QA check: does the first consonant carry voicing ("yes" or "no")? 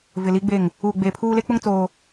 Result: yes